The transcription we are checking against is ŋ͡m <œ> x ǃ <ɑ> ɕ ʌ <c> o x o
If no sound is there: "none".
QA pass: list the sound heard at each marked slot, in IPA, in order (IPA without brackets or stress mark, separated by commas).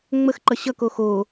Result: ə, ʌ, k